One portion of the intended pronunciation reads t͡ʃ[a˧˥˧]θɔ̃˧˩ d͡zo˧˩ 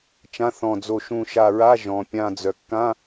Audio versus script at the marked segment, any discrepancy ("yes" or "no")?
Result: yes